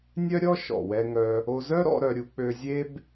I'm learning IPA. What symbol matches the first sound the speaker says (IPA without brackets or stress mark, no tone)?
nʲ